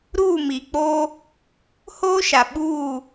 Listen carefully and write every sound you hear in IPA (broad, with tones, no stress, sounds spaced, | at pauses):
ɾ uː˦˨ m i˨ k͡p oː˦ | h oː˦ ʃ a˨ ɓ uː˦˨